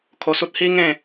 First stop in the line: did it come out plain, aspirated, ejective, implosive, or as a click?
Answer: aspirated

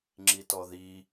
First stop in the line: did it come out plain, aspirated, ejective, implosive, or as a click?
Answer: click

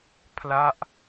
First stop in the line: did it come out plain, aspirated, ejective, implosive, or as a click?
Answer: aspirated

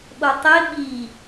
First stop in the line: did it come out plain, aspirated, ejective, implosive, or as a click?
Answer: implosive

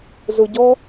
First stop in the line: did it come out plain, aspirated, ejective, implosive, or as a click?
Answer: plain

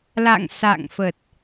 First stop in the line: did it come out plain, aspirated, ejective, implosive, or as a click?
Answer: plain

